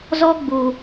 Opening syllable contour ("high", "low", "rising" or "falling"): high